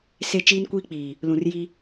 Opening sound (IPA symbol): s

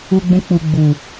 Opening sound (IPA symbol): u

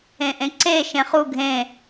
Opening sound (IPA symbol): ẽ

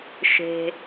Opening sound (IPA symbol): ʃ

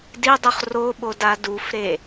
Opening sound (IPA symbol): d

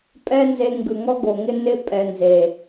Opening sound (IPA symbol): pʼ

